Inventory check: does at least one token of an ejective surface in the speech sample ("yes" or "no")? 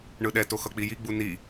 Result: no